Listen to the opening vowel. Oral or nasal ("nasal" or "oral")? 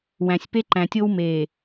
nasal